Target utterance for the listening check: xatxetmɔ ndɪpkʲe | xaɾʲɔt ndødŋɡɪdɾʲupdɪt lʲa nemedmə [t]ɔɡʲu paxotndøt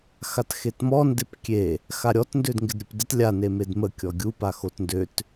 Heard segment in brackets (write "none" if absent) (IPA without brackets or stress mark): kʲ